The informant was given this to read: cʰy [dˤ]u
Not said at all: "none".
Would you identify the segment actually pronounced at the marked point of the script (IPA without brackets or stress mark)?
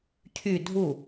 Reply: dʱ